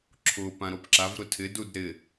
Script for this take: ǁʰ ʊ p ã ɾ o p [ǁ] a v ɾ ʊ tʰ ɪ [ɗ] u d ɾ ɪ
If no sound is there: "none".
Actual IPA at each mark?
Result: ǁ, d

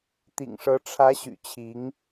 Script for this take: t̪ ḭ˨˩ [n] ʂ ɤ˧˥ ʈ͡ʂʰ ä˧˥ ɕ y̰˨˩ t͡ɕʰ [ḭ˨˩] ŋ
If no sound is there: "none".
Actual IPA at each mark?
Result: ŋ, i˧˥

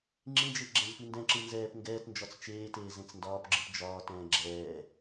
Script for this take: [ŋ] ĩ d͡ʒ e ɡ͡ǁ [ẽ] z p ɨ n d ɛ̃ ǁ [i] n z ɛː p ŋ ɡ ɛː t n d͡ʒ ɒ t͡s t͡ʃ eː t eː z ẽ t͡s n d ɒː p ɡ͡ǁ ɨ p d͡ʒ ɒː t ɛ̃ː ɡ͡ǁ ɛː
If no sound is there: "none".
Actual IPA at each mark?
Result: ŋ͡ǁ, ɛ̃, ɨ

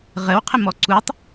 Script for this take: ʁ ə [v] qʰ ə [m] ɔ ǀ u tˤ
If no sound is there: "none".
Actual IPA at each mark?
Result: w, m

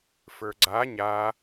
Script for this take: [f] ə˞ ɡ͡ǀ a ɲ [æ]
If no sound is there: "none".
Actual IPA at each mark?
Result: f, a

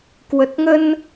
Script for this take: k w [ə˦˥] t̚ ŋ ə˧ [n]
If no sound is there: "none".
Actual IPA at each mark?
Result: ə˨˩, n

